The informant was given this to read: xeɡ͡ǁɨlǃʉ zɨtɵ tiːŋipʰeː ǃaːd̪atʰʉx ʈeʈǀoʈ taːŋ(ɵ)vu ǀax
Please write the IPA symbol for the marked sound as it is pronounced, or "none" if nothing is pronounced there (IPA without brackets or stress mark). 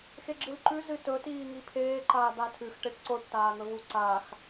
ɵ